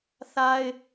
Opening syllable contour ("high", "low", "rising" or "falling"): high